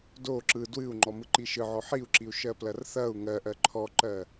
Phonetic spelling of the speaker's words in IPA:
do ǁɯ dwɨu̯ŋ͡ǃɔmɯǃi ʃɯʕɔ ħiu̯ǁiu̯ʃɜplɐr θɐu̯ ŋɜʔɜ ǃʰɔǃɜ

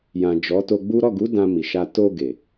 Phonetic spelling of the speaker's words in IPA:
jã˨ d͡ʒɔ˨˦to˧ɡ͡bu˦ ɾɔ˦˨ɡu˨˦ dã˧mi˨ʃa˧ to˧ɡe˨

